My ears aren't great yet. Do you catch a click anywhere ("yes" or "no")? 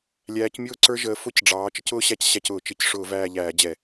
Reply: yes